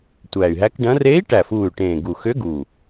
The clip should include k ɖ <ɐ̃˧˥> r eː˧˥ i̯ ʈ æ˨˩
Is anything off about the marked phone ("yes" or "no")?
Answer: no